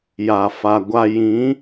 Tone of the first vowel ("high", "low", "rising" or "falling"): low